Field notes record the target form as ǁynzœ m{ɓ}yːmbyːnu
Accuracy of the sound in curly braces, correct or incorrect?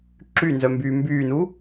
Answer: incorrect: b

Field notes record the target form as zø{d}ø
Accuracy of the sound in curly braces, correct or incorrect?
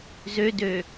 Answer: correct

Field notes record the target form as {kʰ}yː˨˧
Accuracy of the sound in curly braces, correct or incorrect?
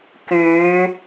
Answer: incorrect: k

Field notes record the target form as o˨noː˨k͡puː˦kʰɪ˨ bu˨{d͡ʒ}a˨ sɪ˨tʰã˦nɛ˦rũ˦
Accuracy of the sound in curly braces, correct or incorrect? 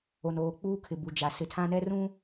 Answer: correct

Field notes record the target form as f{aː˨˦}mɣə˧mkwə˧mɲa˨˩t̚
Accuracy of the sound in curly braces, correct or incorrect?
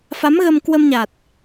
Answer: incorrect: a˨˦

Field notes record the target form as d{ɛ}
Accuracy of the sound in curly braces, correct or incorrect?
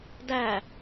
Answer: incorrect: æ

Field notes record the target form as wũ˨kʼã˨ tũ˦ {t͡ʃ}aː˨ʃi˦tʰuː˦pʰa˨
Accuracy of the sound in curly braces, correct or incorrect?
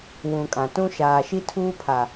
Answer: incorrect: ʃ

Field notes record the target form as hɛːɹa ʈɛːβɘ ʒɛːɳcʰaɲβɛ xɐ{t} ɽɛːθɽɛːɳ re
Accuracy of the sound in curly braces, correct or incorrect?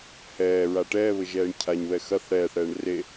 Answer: incorrect: θ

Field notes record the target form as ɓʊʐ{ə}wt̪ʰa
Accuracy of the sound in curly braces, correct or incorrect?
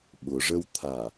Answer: correct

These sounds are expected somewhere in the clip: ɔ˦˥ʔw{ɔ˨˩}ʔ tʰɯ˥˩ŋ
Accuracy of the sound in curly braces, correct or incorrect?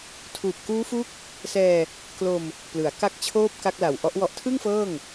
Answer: incorrect: ɔ˦˥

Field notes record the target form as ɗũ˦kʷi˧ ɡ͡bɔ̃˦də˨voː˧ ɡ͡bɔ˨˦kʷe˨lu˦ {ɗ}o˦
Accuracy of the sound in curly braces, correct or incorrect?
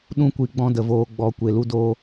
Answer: incorrect: d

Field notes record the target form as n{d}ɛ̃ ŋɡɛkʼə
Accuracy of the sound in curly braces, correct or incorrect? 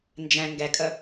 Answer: incorrect: d͡ʒ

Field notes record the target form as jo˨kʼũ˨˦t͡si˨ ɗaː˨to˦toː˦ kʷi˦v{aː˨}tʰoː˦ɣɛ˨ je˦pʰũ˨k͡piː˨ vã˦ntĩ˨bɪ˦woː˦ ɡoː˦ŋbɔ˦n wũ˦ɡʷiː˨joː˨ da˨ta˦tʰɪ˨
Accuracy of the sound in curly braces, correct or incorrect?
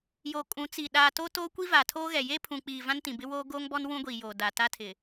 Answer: correct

